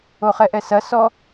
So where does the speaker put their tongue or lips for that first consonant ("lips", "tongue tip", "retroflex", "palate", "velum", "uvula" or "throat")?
uvula